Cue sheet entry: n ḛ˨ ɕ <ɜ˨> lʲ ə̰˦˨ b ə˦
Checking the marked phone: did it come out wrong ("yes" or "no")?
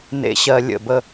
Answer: no